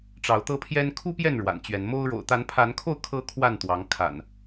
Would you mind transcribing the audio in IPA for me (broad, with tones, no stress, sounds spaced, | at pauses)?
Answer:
ʈ͡ʂ ɑ˨˦ ʊ̯ t̪ ɤ˦ pʰ j ɛ˦ n kʰ u˦ p j ɛ˥˨ n ɻ w a̰˨˩ n t͡ɕ ɥ ɛ˨˦ n m o˦ ʊ̯ ɻ o̰˨˩ ʊ̯ t̪ a˨˦ n pʰ a˨˦ n kʰ o˥˨ ʊ̯ kʰ ɤ˦ kʰ w a˥˨ n t̪ w ɑ˨˦ ŋ kʰ a̰˨˩ n